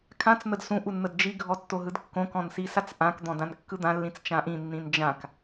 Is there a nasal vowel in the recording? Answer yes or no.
yes